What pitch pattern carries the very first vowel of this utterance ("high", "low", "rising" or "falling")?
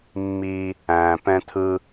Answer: high